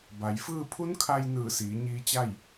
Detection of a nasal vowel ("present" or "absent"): absent